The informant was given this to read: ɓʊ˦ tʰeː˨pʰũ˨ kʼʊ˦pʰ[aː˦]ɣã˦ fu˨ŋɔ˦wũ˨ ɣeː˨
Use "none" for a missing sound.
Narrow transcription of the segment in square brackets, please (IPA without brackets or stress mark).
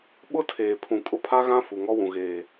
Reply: a˦